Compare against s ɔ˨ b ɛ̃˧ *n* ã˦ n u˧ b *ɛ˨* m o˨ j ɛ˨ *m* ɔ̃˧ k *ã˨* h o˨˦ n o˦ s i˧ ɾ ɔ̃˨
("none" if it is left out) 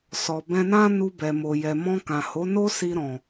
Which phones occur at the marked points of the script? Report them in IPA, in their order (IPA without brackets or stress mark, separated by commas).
n, ɛ˨, m, ã˨